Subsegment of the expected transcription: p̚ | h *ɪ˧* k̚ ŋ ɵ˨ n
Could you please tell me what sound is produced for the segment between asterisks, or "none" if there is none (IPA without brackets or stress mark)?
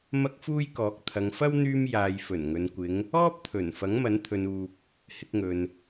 ɪ˧